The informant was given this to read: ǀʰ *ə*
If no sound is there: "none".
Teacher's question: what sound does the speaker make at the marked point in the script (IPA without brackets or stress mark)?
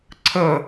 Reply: ə